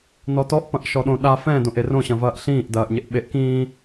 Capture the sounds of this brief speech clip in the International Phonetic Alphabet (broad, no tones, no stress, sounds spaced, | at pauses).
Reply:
n ɔ t ɔ ʔ p ɐ̃ ʔ ʃ ɔ ɗ õ ɗ a f ɛ̃ d õ ʔ e r õ ɕ ɐ̃ v ɐː ʔ ɬ ĩː ʔ d ɐː ʔ ɲ e ʔ ɓ e ʔ k ĩː